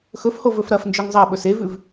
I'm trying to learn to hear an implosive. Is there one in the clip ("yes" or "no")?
yes